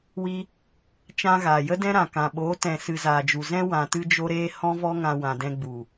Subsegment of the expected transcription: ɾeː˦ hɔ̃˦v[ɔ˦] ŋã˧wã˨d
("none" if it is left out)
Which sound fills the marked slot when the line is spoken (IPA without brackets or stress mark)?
ɔ˦